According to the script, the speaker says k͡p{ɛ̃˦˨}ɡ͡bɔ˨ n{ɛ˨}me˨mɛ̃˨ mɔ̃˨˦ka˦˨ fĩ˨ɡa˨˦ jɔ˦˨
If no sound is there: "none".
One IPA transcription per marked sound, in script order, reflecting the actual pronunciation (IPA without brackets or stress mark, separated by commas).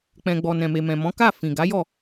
ɛ̃˨, ɛ̃˨